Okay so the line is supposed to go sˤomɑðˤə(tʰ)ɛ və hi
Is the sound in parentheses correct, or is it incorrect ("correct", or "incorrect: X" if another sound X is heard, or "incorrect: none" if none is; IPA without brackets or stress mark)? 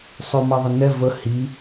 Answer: incorrect: n